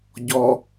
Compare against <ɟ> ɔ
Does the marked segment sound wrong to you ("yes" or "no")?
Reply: no